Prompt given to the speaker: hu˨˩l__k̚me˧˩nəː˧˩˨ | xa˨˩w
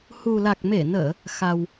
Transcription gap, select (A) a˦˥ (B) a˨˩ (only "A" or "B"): B